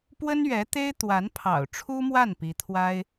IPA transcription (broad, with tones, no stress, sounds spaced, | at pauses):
p w ə˥ n ɥ ɛ˧˥ t̪ e˥ ɪ̯ t̪ w a˧˥ n pʰ ɑ̰˨˩ ʊ̯ ʈ͡ʂʰ u˥ m w a˥˩ n p i˧˥ t̪ʰ w a˥ ɪ̯